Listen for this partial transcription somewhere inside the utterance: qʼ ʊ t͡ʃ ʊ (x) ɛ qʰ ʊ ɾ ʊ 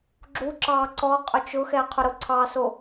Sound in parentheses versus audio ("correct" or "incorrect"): correct